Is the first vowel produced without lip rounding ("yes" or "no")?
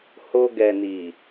no